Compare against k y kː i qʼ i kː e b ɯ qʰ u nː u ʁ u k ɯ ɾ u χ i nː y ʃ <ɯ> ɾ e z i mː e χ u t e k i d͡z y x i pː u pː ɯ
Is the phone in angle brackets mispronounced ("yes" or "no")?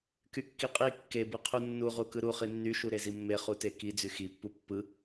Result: yes